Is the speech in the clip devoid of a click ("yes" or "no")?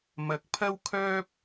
yes